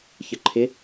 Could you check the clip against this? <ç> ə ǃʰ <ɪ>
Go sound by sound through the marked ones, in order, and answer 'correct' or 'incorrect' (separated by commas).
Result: correct, correct